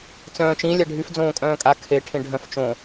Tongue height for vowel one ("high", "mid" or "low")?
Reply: mid